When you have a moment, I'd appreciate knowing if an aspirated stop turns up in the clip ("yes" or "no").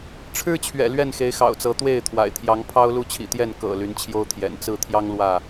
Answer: yes